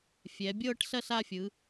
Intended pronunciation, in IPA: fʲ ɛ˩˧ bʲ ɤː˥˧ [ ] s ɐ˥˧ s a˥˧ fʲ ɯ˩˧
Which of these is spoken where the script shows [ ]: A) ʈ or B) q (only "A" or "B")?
A